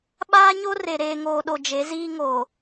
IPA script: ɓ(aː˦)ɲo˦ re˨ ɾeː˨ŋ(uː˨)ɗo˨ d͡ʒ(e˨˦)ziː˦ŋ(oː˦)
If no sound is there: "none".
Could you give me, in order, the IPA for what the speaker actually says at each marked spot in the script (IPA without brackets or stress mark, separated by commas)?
aː˦, oː˨, e˨˦, oː˨